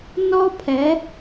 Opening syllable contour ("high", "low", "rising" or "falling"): high